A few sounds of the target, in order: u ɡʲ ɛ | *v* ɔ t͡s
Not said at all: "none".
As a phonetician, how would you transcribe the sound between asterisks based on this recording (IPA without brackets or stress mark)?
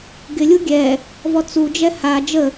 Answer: v